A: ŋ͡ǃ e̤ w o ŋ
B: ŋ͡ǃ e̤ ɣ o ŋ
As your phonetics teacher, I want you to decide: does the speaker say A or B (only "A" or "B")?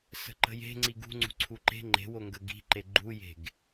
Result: A